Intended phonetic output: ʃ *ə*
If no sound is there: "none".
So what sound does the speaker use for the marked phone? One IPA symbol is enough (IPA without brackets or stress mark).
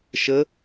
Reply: ə